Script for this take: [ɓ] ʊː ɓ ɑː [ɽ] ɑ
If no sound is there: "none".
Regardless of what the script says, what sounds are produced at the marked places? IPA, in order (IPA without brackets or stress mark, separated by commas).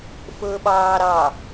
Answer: f, ɾ